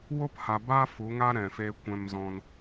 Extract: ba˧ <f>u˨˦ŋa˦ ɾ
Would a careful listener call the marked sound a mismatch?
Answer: no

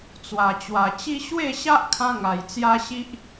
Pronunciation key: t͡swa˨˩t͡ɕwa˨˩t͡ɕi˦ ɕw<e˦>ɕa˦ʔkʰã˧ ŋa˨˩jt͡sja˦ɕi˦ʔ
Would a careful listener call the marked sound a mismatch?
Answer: yes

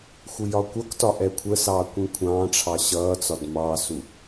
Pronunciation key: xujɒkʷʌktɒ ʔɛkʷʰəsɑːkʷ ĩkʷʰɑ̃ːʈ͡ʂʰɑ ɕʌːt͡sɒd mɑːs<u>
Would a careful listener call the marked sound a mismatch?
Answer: no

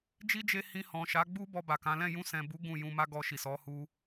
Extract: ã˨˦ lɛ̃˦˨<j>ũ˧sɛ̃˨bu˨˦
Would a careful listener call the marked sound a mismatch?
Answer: no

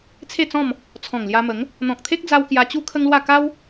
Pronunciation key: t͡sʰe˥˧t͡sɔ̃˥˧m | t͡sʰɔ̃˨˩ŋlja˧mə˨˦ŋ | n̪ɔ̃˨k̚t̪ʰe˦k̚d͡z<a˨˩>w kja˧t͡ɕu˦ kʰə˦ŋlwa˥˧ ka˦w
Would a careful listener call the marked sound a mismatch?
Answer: yes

